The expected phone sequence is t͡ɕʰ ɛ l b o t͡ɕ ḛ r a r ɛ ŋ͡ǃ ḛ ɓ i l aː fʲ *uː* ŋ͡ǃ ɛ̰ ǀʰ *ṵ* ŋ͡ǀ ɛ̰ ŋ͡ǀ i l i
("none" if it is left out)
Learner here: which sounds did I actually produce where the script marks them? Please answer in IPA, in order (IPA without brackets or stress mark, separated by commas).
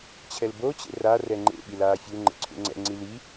u, ṵ